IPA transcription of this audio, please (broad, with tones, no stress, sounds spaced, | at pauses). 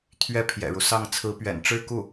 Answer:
t̪ʰ ɥ ɛ˥ pʰ j ɛ̰˨˩ ɻ u˦ s ɑ˥˩ ŋ t͡sʰ ɹ̩˧˥ p ɥ ɛ̰˨˩ n ʈ͡ʂ ɻ̩˥˧ k u˥˩